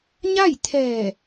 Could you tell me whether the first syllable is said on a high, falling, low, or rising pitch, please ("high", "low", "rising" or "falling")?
falling